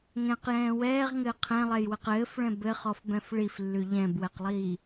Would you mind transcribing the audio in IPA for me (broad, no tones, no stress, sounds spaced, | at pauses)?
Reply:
ŋ ɛ̃ q j ɛ̃ː w ɛː ʁ ŋ ɘː qʰ ɛ̃ lˠ ɛ j w ɘ q ɘː f ɭ ɛ̃ b ɘ χ ɔ f b ɛ̃ f ɭ i f lː ʉ ʎ ɛ̃ b w ɛ q lˠ iː